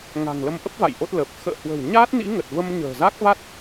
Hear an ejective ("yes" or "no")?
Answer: no